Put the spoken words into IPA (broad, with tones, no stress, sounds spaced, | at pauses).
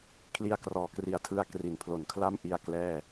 kʰ l i˧ a̯ k r ɔː˩˦ k r i˨˩ a̯ tʰ ɯ˦˥ a̯ k r i˩˦ n pʰ l o˨˩ n kʰ l a˥˩ m ʔ i˧ a̯ k l ɛː˥˩